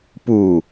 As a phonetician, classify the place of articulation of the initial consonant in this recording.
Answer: labial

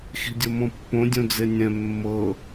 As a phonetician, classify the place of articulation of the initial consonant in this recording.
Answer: velar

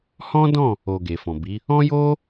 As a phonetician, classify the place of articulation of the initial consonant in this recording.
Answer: glottal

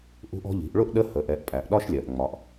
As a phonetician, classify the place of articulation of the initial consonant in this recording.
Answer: glottal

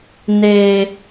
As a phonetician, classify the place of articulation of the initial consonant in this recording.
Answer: alveolar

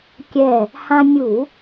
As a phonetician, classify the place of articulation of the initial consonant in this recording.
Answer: velar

